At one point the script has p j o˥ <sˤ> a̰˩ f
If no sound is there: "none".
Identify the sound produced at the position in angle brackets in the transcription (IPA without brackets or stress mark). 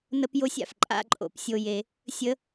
sʲ